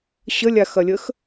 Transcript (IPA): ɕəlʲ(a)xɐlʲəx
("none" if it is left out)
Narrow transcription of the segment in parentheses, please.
a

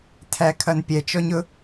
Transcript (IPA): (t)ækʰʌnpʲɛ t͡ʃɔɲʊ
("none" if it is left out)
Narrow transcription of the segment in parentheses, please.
tʰ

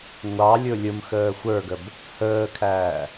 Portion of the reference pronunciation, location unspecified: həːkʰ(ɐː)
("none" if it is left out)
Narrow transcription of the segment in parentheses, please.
æː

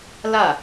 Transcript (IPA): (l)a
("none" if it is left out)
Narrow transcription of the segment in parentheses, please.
l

